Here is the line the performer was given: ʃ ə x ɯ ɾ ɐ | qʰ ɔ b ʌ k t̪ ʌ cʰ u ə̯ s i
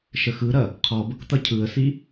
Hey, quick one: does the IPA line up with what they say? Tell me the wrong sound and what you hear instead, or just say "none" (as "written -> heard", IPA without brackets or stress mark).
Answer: u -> ɯ